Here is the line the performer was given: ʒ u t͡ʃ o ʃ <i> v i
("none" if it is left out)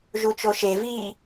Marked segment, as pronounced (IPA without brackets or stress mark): e